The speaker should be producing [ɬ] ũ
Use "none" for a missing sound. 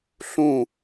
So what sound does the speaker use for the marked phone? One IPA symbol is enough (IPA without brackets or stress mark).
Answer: ɬ